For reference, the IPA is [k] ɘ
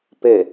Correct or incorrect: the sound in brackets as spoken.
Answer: incorrect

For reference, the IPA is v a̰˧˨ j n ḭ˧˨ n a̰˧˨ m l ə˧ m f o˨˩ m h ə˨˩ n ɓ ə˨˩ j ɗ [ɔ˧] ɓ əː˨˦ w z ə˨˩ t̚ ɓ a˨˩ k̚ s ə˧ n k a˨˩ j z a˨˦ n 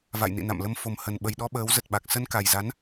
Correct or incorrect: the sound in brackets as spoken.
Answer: correct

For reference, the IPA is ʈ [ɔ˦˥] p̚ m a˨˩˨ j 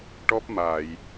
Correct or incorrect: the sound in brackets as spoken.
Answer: correct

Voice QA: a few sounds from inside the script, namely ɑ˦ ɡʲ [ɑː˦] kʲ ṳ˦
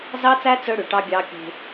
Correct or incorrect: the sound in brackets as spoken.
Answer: correct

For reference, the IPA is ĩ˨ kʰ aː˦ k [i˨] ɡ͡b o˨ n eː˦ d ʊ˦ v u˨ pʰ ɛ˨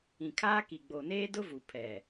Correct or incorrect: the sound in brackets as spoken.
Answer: correct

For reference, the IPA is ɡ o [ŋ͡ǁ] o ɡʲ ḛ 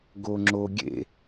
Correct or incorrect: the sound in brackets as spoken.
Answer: correct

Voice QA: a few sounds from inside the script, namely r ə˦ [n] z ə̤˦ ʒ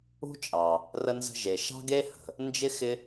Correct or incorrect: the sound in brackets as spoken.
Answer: correct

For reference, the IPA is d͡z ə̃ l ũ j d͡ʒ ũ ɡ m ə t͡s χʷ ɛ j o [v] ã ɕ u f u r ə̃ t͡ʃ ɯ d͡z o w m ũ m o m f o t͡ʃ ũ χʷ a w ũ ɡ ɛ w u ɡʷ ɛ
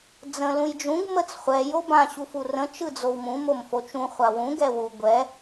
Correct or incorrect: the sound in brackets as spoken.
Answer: incorrect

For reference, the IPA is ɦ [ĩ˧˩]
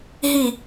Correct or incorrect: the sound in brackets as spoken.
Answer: incorrect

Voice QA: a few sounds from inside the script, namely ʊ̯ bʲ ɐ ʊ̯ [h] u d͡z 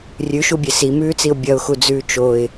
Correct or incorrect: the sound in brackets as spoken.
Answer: incorrect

